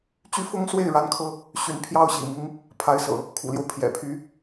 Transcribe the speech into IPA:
t͡ɕ y˥ f ʊ˥ ŋ s w e˥˩ ɪ̯ ɻ a˥ n kʰ ɤ˥ | ɕ y˧˥ n pʰ j ɑ˥ ʊ̯ ɕ ḭ˨˩ m i˧˥ ŋ | pʰ a˧˥ ɪ̯ s ɤ̰˨˩˦ | kʰ ṵ˨˩ l j o˦ ʊ̯ pʰ j ɛ̰˨˩ pʰ y˧˥

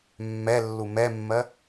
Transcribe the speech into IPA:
mː ɛ lː u m ɛ mː ɜ

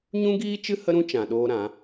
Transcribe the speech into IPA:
ɲ ũ˦ ɡ iː˦ t͡ʃ ɨ˦ h ə˦ ɾ ũ˦ t͡ʃ ã˨ ɗ oː˧ ɾ ã˨˦

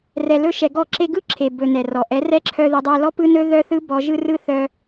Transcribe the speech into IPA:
r ɛ˧ l ɵ˦ ʃ ɛ˧ ɡ ɔ˦˨ ǁ e˧ ɡ ɯ˦˨ ǁʰ e˨ b ɵ˨ n ɛ˨ r ɔ˨ ʔ ɛ˨˦ r ɛ˦˨ ǁʰ œ˧ ð e˧ dˤ ɛ˧ l ɔ˦ p ɯ˦ n ɵ˦ ð œ˦ θ ɯ˦ b ɔ˦ ʒ ɯ˦ r ɯ˦ θ œ˧

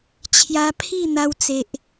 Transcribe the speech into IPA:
t͡ɕʰ j a˧ pʰ i˥˧ n̪ a˧ w t͡s e˨ ʔ

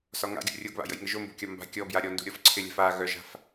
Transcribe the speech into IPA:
s ɒ ŋ a̰ ɡʲ o̰ rʲ o ɡ β a̰ j ə̰ j ŋ ɘ ʒ o m b o̤ kʲ ɒ m b a̤ kʲ ɔ b j a ɾʲ ɔ n d ṳ ɾʲ ɔ f ǀʰ ɪ lʲ a̤ f a ɣ œ ʒ a̤ f

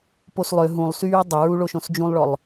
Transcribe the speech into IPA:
p o s lˠ ø ɦ ũ lˠ s yː dˤ ə ɹ u ɭ o ʃ õ s d͡ʒ ũ lˠ ɭ ɔ lˠ

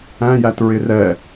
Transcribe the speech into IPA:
æ̃ j æ t ɹ ɪ r ɛ

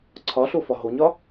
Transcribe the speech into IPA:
ǀʰ ɒ ɬ o f ɒ ɦ o ɲ ɒ

